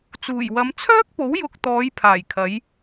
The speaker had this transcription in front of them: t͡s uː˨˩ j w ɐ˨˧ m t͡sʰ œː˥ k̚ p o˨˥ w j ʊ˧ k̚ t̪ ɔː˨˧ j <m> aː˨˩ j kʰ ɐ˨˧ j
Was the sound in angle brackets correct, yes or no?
no